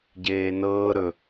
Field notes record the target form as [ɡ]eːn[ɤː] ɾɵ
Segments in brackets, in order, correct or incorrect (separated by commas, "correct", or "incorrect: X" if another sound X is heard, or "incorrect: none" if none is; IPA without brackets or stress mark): incorrect: ɟ, correct